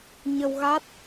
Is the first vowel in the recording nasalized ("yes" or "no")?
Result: no